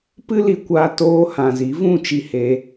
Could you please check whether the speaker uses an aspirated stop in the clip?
no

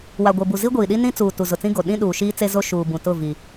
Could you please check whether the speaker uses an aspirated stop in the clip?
no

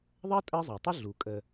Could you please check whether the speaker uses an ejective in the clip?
yes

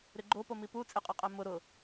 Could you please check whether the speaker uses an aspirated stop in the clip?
no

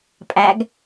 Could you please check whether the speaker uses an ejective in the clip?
yes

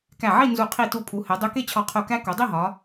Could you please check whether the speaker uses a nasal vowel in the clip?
no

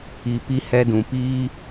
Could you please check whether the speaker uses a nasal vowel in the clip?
yes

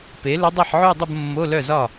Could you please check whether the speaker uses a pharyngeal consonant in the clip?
yes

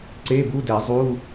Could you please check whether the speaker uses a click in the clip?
yes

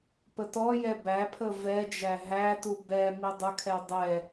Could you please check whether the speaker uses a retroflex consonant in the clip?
no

